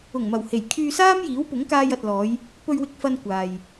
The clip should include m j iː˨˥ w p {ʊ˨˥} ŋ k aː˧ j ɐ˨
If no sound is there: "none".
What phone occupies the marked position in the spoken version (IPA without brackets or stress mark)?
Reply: ʊ˨˥